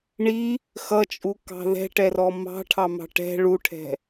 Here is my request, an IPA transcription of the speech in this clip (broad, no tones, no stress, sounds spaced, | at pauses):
ɳ i | x ʌ t͡ʃʼ u k ɑ̤ ð ɛ̤ ʈ ɛ r ɔ m ɑ̤ ʈʰ ɑ m ɑ̤ ʈ ɛ̤ ɭ u ʈʰ ɛ̤